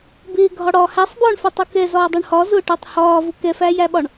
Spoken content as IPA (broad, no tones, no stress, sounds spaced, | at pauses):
b ɪː ɡʱ ɒ ɽ ɒː h æ sˤ b ɒː ɳ f æ tˤ u k ɛ z ɒː dˤ u ɳ h ɒ z ʊː ʈ ʊː tˤ h ɒː v ʊ k ɛ f æː j æ ɓ ɒ ɳ